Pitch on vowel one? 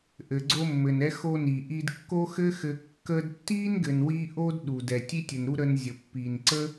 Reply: low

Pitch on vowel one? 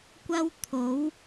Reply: high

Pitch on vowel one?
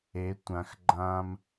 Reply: rising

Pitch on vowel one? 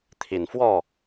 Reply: low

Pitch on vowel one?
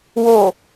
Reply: low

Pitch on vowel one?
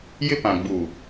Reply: high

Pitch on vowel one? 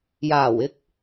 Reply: low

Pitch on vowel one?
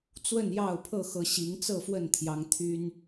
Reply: falling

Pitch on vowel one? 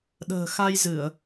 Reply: low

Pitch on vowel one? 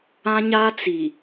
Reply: high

